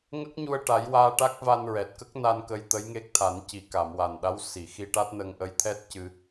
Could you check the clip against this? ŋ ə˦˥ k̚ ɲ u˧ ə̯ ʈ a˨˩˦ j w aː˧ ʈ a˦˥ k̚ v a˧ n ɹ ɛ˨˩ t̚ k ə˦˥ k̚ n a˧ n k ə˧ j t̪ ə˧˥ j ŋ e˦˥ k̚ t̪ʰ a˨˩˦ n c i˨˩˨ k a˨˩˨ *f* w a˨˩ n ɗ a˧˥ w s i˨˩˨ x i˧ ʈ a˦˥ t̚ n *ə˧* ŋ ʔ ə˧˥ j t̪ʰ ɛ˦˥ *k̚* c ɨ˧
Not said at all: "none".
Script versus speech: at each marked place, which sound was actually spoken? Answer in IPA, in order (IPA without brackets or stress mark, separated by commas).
m, ə˧, t̚